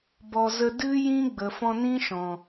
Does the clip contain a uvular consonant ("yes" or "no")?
no